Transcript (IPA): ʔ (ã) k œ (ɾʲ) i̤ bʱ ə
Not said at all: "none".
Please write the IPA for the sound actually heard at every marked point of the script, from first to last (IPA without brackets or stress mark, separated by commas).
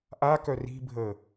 a, r